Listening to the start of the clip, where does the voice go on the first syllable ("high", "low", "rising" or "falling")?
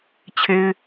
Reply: low